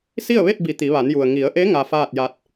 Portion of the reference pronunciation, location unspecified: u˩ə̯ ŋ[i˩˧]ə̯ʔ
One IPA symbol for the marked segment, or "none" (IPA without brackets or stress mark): i˩˧